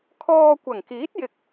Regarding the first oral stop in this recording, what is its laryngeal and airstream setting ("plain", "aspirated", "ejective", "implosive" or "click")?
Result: aspirated